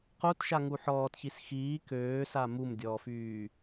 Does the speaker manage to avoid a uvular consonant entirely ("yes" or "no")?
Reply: no